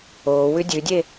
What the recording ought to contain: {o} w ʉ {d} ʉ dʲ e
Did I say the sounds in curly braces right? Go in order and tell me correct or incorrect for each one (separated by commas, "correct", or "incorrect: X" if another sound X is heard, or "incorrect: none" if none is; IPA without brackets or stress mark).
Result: correct, incorrect: dʲ